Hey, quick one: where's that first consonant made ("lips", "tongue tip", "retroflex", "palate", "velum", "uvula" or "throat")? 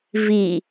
lips